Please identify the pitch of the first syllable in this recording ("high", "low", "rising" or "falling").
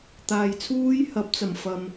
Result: low